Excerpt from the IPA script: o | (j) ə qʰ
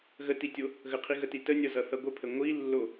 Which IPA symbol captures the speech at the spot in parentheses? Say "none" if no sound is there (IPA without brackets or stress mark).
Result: ɣ